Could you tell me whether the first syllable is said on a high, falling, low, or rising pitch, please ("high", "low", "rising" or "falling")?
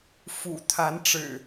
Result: low